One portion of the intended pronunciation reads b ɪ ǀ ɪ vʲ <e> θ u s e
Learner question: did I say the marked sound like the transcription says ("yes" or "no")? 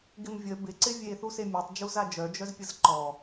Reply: yes